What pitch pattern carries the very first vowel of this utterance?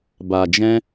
low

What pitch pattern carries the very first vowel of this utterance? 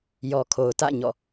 low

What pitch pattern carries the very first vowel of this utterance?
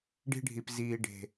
high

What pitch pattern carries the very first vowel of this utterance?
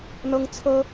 high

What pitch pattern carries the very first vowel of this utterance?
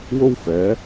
high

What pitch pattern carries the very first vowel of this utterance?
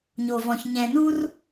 low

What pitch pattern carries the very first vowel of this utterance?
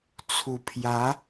low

